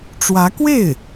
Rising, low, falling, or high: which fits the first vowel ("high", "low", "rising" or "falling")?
rising